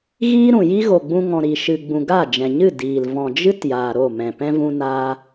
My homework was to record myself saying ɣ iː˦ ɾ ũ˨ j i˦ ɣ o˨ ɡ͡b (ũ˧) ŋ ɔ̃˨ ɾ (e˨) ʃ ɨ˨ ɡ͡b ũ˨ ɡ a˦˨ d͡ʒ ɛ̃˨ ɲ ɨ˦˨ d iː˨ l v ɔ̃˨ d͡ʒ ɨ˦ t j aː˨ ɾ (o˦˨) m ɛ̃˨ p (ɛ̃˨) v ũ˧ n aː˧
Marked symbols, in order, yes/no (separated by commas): yes, no, yes, no